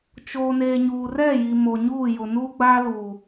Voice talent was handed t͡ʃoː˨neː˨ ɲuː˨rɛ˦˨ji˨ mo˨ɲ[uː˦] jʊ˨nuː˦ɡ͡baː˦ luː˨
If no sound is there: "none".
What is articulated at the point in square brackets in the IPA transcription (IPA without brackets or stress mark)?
uː˦˨